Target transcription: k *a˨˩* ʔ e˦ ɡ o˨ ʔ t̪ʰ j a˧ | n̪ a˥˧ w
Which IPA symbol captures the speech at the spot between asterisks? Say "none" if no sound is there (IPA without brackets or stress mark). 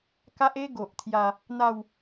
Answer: a˦